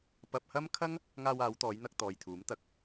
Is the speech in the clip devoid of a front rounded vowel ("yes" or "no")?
yes